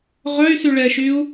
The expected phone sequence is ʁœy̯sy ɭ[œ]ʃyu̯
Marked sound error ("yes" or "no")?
yes